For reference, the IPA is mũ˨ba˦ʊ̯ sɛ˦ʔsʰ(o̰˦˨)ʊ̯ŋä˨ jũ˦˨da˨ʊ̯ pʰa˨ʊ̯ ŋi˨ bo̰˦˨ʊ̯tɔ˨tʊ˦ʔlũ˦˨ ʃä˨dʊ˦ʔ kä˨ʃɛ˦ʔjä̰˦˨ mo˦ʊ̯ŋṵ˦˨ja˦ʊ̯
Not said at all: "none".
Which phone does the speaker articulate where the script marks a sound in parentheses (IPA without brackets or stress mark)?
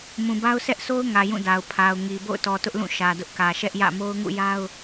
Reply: o˦